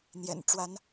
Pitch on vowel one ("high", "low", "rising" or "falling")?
low